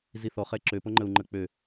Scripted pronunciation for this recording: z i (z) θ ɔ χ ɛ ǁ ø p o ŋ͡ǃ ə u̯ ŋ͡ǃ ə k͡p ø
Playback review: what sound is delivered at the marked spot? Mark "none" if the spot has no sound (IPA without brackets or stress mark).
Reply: none